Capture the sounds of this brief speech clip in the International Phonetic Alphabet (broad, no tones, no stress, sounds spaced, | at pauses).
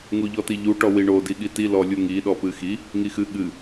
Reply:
ŋ u ʎ ɔ t i ʎ u ʈ ɔ w i ɳ o d i ɠ i t i l ɔ lʲ u ŋ i ɗ ɔ p ɨ x i | ŋ i x ɨ ɠ ɨ